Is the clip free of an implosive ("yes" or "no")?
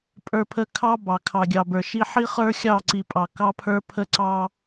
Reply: yes